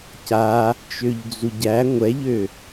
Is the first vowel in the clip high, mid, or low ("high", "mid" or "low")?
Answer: low